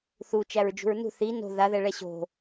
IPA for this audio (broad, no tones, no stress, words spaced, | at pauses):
θu t͡ʃæɹd͡ʒṳɹnṳ θi no̤ ðaðɛ ɭɛɕo̤